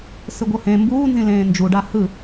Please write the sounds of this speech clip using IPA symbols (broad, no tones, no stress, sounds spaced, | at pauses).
s ɯ ɡʷ ɤ h ẽ m b uː n z ĩ l ẽː n d͡ʒ u ɖ a h ɯ